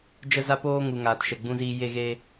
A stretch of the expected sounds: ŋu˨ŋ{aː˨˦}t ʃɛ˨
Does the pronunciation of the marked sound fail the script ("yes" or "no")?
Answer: yes